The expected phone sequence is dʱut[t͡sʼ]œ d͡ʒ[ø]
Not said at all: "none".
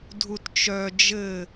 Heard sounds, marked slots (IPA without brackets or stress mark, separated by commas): t͡ʃ, ɘ